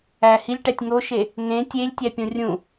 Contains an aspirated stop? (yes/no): no